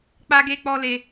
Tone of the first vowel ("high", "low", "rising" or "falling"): high